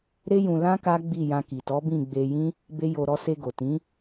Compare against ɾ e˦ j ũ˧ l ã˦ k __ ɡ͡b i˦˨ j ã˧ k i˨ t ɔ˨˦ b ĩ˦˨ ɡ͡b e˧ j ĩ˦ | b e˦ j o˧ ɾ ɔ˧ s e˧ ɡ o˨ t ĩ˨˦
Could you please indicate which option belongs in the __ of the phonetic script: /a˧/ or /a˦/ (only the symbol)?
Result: a˦